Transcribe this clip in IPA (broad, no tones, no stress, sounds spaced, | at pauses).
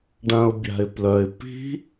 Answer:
ɖ ã ʊ̯ bʲ a̤ ɪ̯ p l œ ɪ̯ p i̤